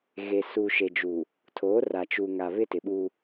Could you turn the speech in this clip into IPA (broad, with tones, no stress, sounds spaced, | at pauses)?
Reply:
ɣ e˨ s u˨ ʃ e˨ d͡ʒ u˨ | tʰ oː˨˦ r a˨ t͡ʃ u˨ ŋ a˨ β ɪ˦ t ɪ˨ ɓ u˦